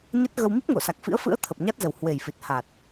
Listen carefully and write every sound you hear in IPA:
ɲ ə˦˥ t̚ ɣ ə˧ w m i˦˥ p̚ ŋ o˧˩ s a˨˩ k̚ f ḭ˧˥ ə̯ f ɨ̰˧˥ ə̯ t̪ʰ ə˨˩ p̚ ɲ a˦˥ t̚ z ə˨˩ w h w e˨˩ j f i˨˩ t̚ h a˨˩ t̚

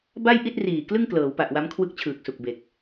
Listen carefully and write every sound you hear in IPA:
b a˥˩ j ʔ i˥˩ t̚ r iː˨˩ k l ɯ˥˩ ŋ k l ɤː˩˦ w p a˨˩ ʔ w a˦˥ m kʰ w ɯ˦˥ k̚ t͡ɕʰ ɯː˨˩ k̚ s u˨˩ k̚ b e˨˩ k̚

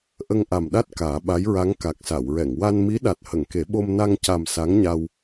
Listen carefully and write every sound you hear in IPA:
ʔ ə˧ ŋ ʔ a˨˩ m ɗ a˦˥ t̚ k aː˨˩˦ ɓ a˧˥ j ɹ a˧˥ ŋ k a˨˩ k̚ s a˨˩˨ w ɹ ɛ˨˩˨ ŋ w a˧ n m i˧˥ ɗ a˨˩ t̚ h ə˨˩˨ ŋ k e˨˩˦ ɓ o˧ m n a˧ ŋ c a˨˩ m s a˧˥ ŋ ɲ a˧ w

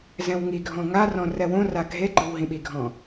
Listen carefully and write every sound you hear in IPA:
z ɛ̃ w ŋ i ɡʱ ɔ̃ ŋ a r ɔ̃ r ɛ w õ r a ɡʱ e ɡ͡ǃ ɯ w ɦ ĩ ɓ i ɡʱ ɔ̃

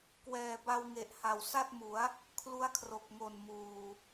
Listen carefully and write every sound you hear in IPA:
k w ɛː˨˩ b a˧ w ŋ e˨˩ ʔ h a˨˩ w s a˥˩ t̚ m u˩˦ a̯ | kʰ l u˦˥ a̯ kʰ r o˨˩ k̚ ŋ o˨˩ n m uː˨˩

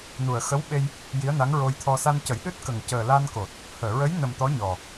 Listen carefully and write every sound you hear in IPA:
n u˨˩ ə̯ x ə˧˥ w ɓ e˧ j | j i˧˥ ə̯ n a˧˥ ŋ ɹ o˧ j t̪ʰ ɔ˧ s a˧ n c ə˨˩˦ j ɗ ɨ˦˥ t̚ k ə˨˩ ŋ c əː˨˩ l a˧ n k o˨˩ t̚ | h əː˨˩˨ ɹ ə˧˥ j n ə˨˩ m t̪ ɔ˧˥ ɲ ɔ˨˩

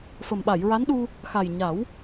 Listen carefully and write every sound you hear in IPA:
f ə˨˩ m ɓ a˨˩˨ j ɹ a˧˥ n ɗ u˧ | x a˨˩ j ɲ a˨˩˦ w

